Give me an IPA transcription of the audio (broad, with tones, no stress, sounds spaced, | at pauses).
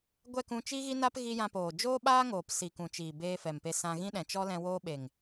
ɡʷ ɛ˦˨ k ũ˧ t͡ʃ i˦ ɣ i˦ n a˦ p ɣ i˧ j ã˧ p oː˨ d͡ʒ oː˦ ɓ aː˦ ŋ oː˨ p s i˨ k ũ˨ t͡ʃ iː˨ b eː˧ f ɛ˨ m p e˧ s ã˧ ɣ ĩ˦ ɗ ɛ̃˨ t͡ʃ ɔ˦ l ɛ̃˧ w oː˧ ɓ e˨ ŋ